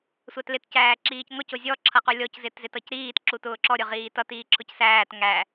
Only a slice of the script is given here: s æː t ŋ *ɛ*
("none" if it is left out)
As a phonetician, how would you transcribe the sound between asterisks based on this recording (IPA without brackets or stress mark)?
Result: æ